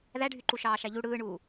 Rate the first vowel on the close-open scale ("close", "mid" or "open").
open